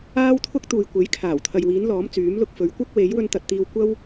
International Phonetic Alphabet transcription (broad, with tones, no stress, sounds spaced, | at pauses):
aː˥ w t̪ʰ ʊ˥ k̚ t̪ uː˨ j kʷ e˨˥ j kʰ aː˨˩ w t̪ʰ ɐ˨ j w iː˨˥ n l ɔː˨˥ m t͡s yː˨˥ m l ʊ˧ k̚ f ɵ˨˥ ɥ kʷ ɐ˥ k̚ w e˨˥ j w ɵ˥ n t̪ ɐ˧ t̚ t̪ iː˧ w kʷ ɐ˥ w